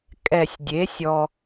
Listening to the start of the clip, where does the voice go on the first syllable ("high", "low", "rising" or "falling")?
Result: low